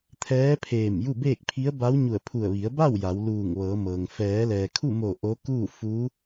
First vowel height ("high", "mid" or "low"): mid